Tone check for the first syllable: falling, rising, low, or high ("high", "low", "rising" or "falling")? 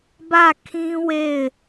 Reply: falling